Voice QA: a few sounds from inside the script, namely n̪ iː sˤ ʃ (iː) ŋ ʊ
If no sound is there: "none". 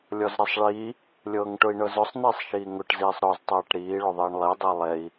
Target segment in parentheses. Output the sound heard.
iː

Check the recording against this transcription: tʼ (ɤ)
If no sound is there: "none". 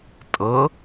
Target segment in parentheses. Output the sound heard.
ɤ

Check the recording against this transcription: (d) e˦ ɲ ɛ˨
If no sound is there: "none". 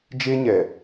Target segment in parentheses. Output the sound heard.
d͡ʒ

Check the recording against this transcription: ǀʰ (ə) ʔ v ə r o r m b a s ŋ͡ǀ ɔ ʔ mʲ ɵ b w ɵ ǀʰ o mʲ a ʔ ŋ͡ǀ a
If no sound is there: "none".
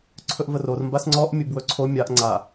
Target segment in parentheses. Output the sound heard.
ɵ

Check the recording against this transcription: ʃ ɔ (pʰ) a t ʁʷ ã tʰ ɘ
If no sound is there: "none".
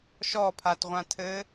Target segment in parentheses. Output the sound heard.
pʰ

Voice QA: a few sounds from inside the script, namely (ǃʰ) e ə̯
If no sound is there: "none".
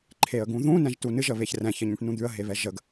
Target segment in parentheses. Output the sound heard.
ǃʰ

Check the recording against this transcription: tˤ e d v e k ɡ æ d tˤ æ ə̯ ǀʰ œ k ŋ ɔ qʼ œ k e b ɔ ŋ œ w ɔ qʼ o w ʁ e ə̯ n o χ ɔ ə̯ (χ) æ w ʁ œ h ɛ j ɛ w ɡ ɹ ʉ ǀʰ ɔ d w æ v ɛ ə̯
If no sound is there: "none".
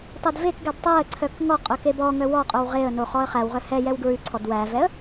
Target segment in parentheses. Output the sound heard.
χ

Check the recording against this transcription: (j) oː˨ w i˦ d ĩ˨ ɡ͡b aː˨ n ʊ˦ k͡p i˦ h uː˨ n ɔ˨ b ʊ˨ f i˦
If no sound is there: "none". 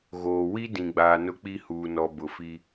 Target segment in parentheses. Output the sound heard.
ɣ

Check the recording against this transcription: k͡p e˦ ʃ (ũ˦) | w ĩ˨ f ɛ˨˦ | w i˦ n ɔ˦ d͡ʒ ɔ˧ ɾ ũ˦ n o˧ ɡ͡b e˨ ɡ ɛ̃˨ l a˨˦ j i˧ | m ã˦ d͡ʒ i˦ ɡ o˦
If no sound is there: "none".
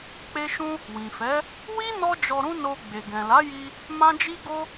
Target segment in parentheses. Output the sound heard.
ũ˦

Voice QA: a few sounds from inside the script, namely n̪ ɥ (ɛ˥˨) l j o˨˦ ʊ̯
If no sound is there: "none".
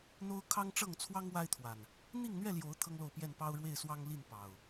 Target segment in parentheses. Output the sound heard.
ɛ˥˨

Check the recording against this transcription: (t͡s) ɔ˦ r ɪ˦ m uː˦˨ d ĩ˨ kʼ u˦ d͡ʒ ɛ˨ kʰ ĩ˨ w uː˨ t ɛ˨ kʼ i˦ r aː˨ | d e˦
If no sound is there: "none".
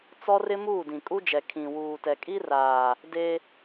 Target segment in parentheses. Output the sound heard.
t͡s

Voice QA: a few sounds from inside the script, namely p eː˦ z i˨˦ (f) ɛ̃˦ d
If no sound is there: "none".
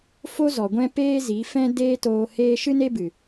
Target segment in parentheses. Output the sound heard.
f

